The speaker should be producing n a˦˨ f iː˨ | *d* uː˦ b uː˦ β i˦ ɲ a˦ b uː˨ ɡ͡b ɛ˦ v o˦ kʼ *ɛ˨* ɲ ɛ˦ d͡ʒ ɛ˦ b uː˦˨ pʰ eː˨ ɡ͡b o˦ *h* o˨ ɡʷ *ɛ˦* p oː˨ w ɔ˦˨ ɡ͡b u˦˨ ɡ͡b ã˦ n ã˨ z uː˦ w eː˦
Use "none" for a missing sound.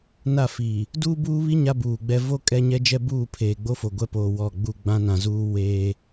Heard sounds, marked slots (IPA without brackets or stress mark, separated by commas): d, ɛ˦, f, ɛ˦